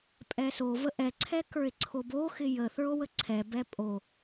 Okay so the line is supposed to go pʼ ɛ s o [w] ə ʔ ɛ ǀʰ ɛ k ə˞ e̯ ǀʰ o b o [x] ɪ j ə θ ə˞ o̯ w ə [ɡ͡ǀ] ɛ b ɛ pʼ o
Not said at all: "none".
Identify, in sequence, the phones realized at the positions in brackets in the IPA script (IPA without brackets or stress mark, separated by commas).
v, x, ǀʰ